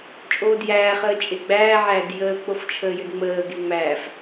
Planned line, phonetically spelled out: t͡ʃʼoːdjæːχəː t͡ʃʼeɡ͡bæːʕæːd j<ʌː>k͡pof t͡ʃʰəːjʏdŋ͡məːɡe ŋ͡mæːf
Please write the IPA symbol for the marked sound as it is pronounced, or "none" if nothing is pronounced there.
əː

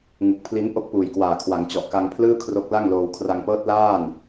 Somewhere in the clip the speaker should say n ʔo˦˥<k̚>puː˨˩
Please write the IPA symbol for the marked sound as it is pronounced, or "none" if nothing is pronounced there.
k̚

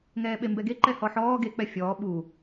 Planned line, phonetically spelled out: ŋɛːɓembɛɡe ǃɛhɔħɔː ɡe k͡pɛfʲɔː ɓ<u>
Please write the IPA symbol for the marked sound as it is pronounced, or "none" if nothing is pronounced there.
u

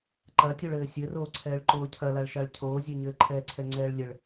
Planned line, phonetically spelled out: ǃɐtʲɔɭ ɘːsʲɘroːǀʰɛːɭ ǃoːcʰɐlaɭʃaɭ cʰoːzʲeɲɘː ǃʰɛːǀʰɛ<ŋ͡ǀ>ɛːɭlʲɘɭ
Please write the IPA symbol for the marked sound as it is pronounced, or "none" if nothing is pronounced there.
ŋ͡ǀ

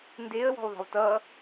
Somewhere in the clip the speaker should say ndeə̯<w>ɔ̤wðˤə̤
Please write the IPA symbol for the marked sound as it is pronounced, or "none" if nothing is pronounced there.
w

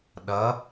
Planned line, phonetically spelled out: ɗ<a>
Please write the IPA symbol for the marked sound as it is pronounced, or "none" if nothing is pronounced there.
ʌ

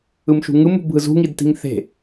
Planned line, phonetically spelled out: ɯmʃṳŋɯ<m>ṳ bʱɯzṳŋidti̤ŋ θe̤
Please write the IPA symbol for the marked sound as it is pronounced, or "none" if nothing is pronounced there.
m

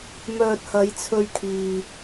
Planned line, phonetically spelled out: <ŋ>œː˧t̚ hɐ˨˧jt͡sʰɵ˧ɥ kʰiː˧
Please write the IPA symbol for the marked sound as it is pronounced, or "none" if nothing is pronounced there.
m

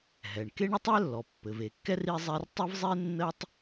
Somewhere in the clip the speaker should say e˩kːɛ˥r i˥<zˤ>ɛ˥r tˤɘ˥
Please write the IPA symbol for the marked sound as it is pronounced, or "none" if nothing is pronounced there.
zˤ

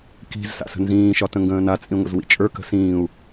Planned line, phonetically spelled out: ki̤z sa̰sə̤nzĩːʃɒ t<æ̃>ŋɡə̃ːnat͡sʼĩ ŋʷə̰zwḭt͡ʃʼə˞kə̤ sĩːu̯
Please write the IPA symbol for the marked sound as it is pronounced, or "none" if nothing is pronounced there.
ə̃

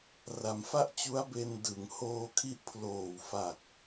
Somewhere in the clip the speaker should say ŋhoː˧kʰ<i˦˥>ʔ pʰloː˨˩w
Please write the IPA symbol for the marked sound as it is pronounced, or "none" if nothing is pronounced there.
i˦˥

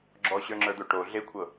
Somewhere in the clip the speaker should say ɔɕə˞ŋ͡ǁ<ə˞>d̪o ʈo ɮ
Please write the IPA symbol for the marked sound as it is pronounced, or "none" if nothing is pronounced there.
ə˞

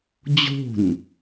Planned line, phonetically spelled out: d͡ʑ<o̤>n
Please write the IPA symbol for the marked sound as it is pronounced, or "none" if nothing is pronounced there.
o̤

